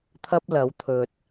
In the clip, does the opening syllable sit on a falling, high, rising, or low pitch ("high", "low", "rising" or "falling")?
high